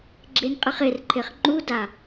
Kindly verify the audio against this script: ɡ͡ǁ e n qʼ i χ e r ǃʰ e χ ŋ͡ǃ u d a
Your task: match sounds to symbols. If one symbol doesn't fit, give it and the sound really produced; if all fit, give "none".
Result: none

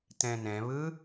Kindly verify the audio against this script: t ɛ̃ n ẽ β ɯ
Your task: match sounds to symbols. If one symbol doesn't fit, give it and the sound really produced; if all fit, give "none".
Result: ẽ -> ɛ̃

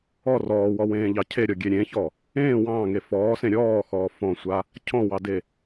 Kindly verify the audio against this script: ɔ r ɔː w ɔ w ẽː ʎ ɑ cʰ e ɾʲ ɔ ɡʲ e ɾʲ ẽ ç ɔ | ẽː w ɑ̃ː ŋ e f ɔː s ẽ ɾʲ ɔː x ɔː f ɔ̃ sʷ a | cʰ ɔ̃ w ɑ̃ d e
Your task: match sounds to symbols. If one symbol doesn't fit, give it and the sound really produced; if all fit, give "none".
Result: ɑ̃ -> ɑ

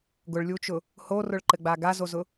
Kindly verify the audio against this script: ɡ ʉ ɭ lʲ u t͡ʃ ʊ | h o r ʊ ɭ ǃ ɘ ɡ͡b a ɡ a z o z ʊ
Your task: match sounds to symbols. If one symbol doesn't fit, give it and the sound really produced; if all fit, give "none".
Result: ʉ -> ʊ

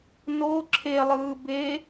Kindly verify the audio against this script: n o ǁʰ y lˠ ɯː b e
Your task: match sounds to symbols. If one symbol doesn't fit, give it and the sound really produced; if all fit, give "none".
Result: y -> e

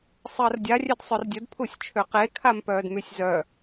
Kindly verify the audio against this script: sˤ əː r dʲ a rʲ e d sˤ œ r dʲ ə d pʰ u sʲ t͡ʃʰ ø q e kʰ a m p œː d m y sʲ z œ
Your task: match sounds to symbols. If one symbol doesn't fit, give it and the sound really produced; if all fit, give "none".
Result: none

